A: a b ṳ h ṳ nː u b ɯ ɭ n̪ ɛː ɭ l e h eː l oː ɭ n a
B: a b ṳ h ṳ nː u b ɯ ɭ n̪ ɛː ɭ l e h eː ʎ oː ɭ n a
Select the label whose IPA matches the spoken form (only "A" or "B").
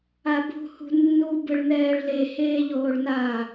B